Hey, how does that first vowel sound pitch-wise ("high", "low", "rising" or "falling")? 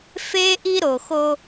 high